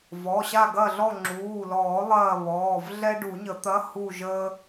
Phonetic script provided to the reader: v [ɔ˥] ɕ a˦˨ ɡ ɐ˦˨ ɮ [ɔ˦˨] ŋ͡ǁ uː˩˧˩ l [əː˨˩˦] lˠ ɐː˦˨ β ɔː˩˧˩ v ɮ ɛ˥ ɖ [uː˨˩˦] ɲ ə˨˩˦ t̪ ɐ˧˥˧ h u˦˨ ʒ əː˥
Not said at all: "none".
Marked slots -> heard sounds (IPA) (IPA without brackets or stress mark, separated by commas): ɔ˩˧˩, ɔ˦˨, ɔː˨˩˦, u˨˩˦